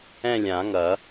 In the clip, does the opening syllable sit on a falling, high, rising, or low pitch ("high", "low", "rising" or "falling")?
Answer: falling